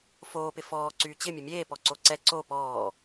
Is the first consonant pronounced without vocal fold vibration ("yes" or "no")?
yes